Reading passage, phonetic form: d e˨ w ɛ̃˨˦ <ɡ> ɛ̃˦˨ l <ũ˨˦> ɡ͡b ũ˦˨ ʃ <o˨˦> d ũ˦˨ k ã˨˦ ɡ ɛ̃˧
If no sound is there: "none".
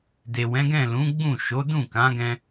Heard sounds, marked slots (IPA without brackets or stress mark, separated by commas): ɡ, ũ˨˦, o˨˦